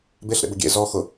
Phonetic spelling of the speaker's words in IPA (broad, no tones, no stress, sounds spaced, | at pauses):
b e ɬ ɾ ḛ b ʊ ɡʲ ḛ z ɔ x ʊ